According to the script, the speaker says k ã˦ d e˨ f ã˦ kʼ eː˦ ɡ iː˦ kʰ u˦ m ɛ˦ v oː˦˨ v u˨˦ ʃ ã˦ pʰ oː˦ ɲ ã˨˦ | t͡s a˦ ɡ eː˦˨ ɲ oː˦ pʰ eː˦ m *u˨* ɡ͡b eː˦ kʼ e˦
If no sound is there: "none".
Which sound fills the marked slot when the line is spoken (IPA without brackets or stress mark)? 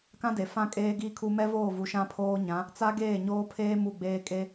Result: u˦˨